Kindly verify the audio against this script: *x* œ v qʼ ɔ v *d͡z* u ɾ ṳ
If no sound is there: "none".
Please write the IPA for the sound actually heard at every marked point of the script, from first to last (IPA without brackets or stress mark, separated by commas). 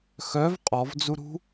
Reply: x, d͡z